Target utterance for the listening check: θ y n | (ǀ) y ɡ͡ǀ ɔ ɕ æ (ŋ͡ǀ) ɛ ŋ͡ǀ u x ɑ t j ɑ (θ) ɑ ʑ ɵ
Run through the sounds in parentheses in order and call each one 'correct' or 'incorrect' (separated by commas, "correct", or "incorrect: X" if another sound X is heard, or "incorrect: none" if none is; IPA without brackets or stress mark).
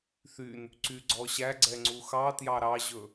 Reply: correct, incorrect: ɡ͡ǀ, incorrect: ɾ